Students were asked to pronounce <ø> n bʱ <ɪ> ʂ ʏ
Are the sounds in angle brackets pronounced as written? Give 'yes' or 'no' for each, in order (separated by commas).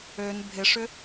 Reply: yes, yes